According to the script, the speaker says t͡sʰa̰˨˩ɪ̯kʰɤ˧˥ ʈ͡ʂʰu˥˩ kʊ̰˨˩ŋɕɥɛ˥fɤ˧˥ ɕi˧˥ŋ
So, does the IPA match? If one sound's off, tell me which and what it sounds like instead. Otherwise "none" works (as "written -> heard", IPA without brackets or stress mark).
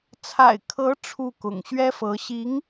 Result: none